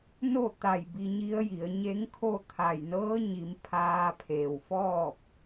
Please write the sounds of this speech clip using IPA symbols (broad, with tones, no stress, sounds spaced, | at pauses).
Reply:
n o˥˨ t̪ a˧˩ j b i˧ ɲ i˧˥ ə̯ j i˩˧ ə̯ ɲ e˧˥ ŋ kʰ o˥˨ t̪ʰ a˧˩ j n ɤː˧˥ ɲ i˩˧ m pʰ aː˧ pʰ eː˩ w f ɔː˥˨ p̚